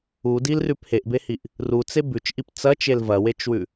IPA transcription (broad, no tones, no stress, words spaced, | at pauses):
udilrʉp heʔbehiʔ | rut͡se bʉt͡ʃʔip t͡sɐt͡ʃel vɐwet͡ʃwʉ